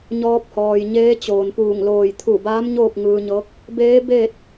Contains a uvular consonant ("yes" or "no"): no